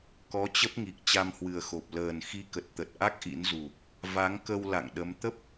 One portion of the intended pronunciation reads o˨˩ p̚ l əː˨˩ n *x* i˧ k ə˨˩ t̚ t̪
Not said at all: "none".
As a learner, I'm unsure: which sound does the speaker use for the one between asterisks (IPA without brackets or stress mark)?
x